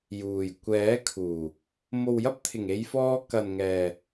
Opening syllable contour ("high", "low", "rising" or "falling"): low